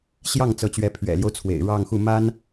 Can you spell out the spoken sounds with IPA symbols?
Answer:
ɕ j ɑ˥˩ ŋ t͡s ɤ˧˥ t͡ɕ ɥ ɛ˧˥ pʰ ɥ ɛ̰˨˩ l j o˦ ʊ̯ t͡sʰ w ḛ˨˩ ɪ̯ ɻ ɑ˥˧ ŋ x u˥˩ m a˥ n

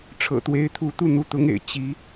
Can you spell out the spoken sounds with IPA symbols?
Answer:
ʈ͡ʂʰ ɤ̰˨˩ t̪ w e˧˥ ɪ̯ t̪ʰ u˧˥ t̪ u˥˩ n̪ u˧˥ t̪ ʊ˧˥ ŋ ḛ˨˩ ɪ̯ t͡ɕ i˧˥

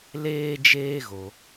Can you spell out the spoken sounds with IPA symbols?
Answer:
l eː˦ d͡ʒ eː˦ ɣ o˧

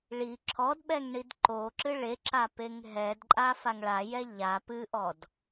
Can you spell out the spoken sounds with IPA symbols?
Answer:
ɭ i ǁʰ ɔ d ɓ ɛ ŋ ɳ i d ǃ o ǁ ɨ ɭ e ǁ a p e ŋ ɦ ɛ d ǃʼ a f a ŋ ɭ a j ɛ ʎ a p ɨ ʔ ɔ d

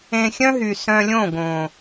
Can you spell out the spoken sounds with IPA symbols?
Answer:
ẽ˧ xʲ œ̃˦ ɦ y˨ s œ̃˧ lʲ õ˦˨ ɡ õ˨

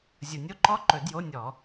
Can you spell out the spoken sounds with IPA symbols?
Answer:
zʲ ʊ˨ nʲ o˥˧ ǃ ɔ˦˥ ǃ ɵ˨˩˦ d j o˧˥˧ nʲ ɔ˨˩˦

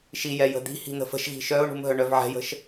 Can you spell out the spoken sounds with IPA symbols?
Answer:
ʃ i j ɛ j ə̤ d̪ i̤ h i̤ n̪ ə̤ f ə̤ ʃ ɣ i̤ ʃ œ ʊ̯ ɳ ṳ m ɦ œ ɳ œ v ʕ ɛ̤ j ə̤ ʃ

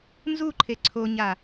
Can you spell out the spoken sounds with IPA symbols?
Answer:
n z u ǃʰ e ǀʰ o ɲ a

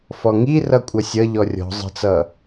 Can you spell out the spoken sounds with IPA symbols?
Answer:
f ɔ ŋ i r ʌ kʷʼ ʌ sʲ ʌ ʎ ɔ rʲ ɔ̤ zˤ ə̤ t͡s ʌ

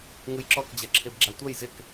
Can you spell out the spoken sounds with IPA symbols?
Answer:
ŋ ɯ j ǁ ɔ k d͡ʑ ɐ ǁʰ e b ɡ͡ǁ a tʷ ɐ j z ɪ k

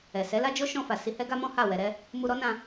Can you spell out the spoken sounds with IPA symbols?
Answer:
ɛ˨ s ɛ˨˦ l a˦ d͡ʒ o˦ ʃ ɔ̃˧ f a˨ s i˧ h ɛ˦ ɡ a˦ m ɔ̃˦ h a˦˨ w ɛ˧ ɾ ɛ˦ | m u˧ ɾ ɔ˦ n ã˧

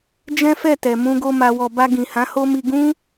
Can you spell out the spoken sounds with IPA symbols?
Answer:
d͡ʒ ɛ̃˦ f ɛ˦˨ t ɛ˨ m ũ˧ ɡ o˧ m a˨ w ɔ˨ b a˧ ɡ ĩ˨ h ã˨˦ h o˦ m i˧ ɡ ũ˦

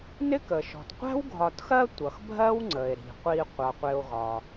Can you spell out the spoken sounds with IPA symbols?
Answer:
n ɪ˥ k ə˩ ʃ ɔ̤˩ t qʷ æ̤˥ w ɡʱ ɒ˨ t x ɜ˦ tʷ ʌ˩ x bʱ ɜ˥ w ŋ͡ǀ ə˩ e̯ ɾ i̤˩ qʷ i˨ qʷ ʌ˩ qʷ ɪ˨ o̯ ɣ ɒ˩

